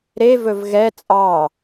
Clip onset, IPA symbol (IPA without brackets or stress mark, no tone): ɾ